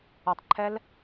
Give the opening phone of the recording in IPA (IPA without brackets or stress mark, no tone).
ʌ